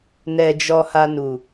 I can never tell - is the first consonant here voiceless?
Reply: no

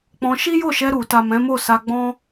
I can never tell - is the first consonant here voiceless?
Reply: yes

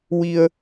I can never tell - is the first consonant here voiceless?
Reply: no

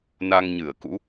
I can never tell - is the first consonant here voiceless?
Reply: no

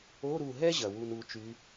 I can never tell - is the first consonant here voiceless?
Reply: no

